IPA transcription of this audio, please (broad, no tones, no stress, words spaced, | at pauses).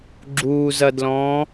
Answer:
ɡ͡ǁuːzɐdlɔ̃ː